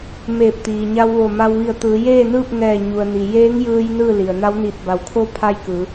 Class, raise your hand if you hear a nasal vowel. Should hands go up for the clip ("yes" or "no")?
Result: no